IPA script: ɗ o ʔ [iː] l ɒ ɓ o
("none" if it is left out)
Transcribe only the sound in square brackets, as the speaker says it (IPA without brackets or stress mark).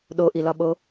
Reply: i